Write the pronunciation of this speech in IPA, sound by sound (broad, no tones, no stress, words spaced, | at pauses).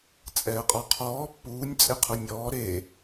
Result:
t͡sʼɛːqʼɔqʰɔː pːuːnʲ t͡sʼeqʰunʲɔː ɾe